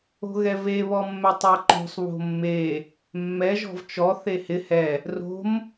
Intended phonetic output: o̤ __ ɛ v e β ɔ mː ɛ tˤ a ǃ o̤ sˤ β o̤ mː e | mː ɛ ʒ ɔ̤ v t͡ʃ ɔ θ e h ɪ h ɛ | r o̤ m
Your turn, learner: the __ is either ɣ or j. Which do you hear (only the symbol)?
ɣ